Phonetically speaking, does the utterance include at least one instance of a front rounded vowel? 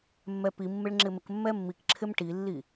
no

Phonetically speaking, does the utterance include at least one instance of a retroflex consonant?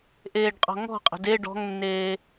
yes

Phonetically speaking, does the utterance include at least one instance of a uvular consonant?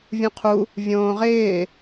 yes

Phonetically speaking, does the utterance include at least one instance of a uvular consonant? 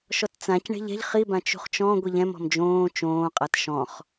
yes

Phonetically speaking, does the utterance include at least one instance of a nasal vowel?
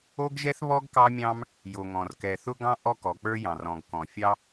yes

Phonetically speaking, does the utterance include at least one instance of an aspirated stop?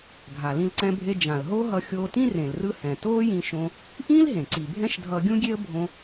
no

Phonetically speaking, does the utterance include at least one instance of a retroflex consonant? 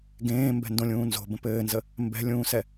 no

